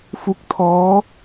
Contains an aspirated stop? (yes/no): yes